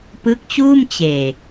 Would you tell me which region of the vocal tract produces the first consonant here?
lips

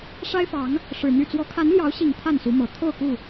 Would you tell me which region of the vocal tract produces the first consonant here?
retroflex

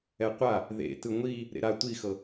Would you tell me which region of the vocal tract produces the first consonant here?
uvula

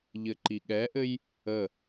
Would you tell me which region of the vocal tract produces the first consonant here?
palate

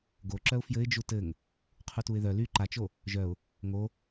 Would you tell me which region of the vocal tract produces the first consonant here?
velum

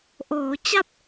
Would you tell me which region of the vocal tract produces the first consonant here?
throat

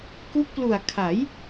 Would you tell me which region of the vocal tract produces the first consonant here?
velum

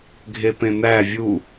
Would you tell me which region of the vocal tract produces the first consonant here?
velum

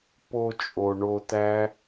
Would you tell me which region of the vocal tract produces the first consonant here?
lips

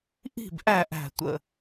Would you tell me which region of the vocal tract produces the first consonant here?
throat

